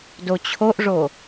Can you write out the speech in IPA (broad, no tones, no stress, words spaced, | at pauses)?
dot͡ɕʰoʔʐo